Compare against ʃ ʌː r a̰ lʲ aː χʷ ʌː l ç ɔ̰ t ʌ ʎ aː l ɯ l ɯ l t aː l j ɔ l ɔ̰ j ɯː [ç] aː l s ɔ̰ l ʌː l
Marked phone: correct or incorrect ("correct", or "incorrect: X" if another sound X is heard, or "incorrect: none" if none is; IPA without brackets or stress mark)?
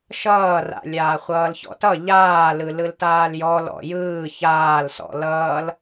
correct